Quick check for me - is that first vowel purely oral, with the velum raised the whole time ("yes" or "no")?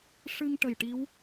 yes